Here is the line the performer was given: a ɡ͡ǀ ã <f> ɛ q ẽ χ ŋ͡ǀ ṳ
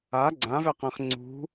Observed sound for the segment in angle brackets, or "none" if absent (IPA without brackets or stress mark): v